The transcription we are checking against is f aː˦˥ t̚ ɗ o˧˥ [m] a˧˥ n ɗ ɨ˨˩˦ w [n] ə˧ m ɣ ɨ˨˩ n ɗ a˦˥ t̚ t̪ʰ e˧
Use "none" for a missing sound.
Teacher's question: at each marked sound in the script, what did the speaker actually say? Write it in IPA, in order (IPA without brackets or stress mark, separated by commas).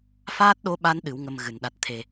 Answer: ɓ, ŋ